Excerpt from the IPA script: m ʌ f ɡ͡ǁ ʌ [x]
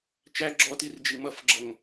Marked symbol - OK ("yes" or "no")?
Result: no